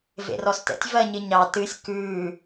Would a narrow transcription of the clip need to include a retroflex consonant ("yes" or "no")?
no